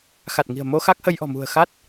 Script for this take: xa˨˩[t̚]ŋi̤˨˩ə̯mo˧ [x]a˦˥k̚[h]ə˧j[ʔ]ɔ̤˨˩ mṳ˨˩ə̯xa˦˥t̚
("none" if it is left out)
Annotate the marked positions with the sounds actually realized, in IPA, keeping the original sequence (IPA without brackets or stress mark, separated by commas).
t̚, x, h, ʔ